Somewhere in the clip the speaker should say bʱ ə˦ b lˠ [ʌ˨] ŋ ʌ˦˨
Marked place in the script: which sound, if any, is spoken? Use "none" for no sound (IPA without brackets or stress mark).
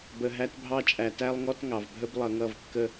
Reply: ʌ˨